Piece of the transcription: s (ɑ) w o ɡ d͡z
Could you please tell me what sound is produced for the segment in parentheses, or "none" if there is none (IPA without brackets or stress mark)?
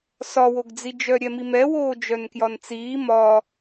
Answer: ɒ